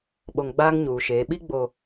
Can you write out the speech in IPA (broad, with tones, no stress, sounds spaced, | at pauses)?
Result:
ɓ o˨ ŋ ɡ͡b aː˦ ŋ ɲ uː˨ ʃ eː˨˦ ɓ i˦ ɡ͡b o˨